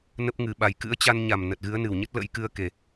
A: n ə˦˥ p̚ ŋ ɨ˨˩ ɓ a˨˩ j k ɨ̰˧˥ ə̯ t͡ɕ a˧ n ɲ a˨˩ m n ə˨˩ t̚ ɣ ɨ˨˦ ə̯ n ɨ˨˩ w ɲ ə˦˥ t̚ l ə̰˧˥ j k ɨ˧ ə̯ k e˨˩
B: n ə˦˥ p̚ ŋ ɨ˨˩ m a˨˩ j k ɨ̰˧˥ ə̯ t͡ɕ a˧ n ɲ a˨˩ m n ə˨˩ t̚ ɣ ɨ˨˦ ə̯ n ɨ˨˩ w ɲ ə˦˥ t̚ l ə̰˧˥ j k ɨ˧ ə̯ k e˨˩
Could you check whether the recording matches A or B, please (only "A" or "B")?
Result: A